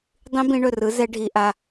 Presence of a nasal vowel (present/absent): present